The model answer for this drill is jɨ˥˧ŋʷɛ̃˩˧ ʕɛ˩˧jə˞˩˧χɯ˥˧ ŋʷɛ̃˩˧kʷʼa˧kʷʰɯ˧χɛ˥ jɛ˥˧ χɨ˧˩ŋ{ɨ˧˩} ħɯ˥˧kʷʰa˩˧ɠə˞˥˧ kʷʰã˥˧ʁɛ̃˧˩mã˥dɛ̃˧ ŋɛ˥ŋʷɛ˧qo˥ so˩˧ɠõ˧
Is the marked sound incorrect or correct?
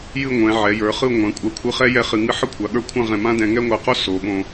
incorrect